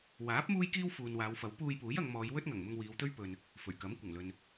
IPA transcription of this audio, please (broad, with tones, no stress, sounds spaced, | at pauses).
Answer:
w aː˨˥ p̚ m uː˥ j k iː˥ w f uː˨ n w aː˨˧ w f ɐ˨˥ w p uː˧ j p uː˨˥ j ɐ˨˧ ŋ m ɔː˨˧ j w ɵ˥ t̚ ŋ ɐ˨˩ ŋ m ʊ˧ ŋ w iː˨˧ w t̪ ɵ˥ ɥ p ɵ˨ n | f ɵ˨˩ ɥ k ɐ˨˥ m kʷ ɐ˨˩ ŋ l ɵ˨ n